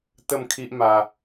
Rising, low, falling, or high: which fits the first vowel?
falling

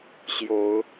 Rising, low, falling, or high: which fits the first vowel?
rising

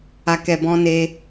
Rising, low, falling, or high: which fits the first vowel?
low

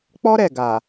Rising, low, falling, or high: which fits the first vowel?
high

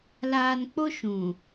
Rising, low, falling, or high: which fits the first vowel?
low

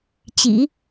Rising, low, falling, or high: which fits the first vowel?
low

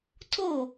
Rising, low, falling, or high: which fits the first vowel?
falling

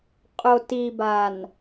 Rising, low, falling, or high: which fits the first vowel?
low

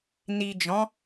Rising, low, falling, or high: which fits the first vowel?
low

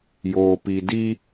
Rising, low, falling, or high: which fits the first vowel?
low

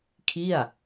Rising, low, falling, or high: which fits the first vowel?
falling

